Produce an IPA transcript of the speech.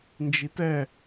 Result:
n d͡ʒ i t ɛ

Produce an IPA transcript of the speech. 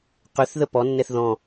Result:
q ʏ θ ð ə p ɔ nː ɛ θ ð ɔ̃

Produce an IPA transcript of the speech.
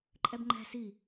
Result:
ǃʼ ɛ b ŋ͡ǃ ɛ̤ s i

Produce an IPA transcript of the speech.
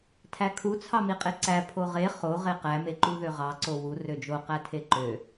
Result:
tʰ æ kʰ u t͡sʰ ɑ m i qʼ e ǀ æ pʰ o ʁ e χ o ʁ e q æ m e ǃ u ð ø ʁ ɑ ǀ o w u r ø d͡ʒ o q æ tʰ e ǃ ø

